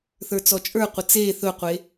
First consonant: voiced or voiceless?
voiceless